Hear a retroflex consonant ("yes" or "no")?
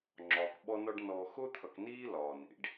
yes